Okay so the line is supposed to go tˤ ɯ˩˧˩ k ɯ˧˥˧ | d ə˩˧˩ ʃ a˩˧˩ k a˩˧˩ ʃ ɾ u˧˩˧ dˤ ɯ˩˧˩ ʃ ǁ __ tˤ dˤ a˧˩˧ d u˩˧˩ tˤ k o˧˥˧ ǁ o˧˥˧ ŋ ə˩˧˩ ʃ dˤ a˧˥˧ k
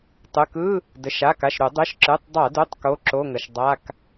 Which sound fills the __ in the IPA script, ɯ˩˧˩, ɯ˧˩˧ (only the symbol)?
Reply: ɯ˩˧˩